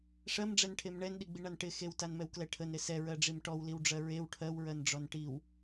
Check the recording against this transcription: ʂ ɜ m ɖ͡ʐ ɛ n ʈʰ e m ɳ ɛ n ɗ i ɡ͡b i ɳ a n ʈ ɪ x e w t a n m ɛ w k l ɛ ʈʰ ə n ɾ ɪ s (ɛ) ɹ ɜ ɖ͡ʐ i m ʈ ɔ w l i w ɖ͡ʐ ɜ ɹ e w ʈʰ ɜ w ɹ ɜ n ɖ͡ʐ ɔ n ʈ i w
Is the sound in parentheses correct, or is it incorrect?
correct